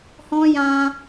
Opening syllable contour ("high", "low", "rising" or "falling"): high